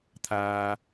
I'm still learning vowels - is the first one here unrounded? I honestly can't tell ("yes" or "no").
yes